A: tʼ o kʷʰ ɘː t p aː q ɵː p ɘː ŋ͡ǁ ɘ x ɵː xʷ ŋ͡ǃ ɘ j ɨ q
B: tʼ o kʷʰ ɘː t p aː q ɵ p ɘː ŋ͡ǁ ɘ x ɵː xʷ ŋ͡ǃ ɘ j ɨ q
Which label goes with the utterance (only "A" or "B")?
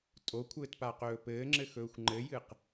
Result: A